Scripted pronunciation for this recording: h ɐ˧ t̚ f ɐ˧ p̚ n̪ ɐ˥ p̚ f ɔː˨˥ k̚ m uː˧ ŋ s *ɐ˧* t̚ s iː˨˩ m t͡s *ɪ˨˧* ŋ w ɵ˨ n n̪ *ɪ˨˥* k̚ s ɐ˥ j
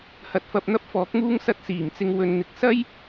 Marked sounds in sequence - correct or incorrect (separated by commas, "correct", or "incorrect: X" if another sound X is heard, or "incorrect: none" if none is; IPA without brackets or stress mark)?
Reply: correct, incorrect: ɪ˨, correct